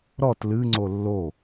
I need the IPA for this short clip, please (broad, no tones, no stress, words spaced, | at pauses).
ɾɔt lɨŋ͡ǀo lːo